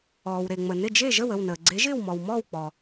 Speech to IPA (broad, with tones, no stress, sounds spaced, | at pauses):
ɔː˩ w ɾ e˩ ŋ͡m ə˩ n ɪ˥˩ d͡ʒ e˥˩ ʒ ə˥˩ w ə˥˩ w n əː˩ ɡ͡ǀ e˩˥ ʒ ɪː˥˩ w m ɔ˩ w m ɔː˥˩ w k͡p ɔ˩